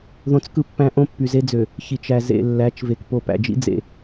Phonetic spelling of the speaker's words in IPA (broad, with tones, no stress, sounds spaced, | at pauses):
ð õ˦ t͡s k ɯ˦ pː æ̃˦ ʔ õ˦ pː y˨ z e˦ d͡z ø˨ | ç i˨ t͡ʃ æ˨ z ḛ˨ lː æ˨˦ t͡ʃ v e˨ k p o˨ p æ̰˨ d͡ʒ ḭ˦ d͡z ḛ˨